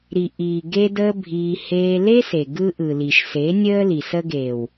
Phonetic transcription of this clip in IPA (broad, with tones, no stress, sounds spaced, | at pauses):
ɾ i˨ ʔ iː˨ ɡ e˦ d əː˦ bʱ iː˧ h eː˧ l e˦ s e˨ ɡ ɯ˧ ʔ ɯ˨ l i˨ ʃ s e˨˦ nʲ əː˦ l i˨ s ə˧ ɡ eː˨ w